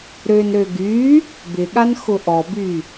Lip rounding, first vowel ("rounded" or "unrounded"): rounded